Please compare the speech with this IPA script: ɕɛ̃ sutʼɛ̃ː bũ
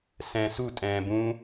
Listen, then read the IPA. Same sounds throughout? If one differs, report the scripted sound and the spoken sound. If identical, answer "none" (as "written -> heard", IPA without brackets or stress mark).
ɕ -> s